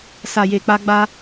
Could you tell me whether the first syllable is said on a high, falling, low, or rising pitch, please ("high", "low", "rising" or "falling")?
low